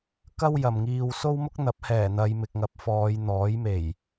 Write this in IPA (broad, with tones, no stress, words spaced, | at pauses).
kɐ˥wjɐ˨mŋiː˧w so˥wmʊ˥k̚ n̪ɐ˨˥p̚hɛː˨˩ n̪ɐ˨˧jmɪ˨k̚ŋɐ˨p̚ fɔː˨˧j n̪ɔː˨˥jme˨˩j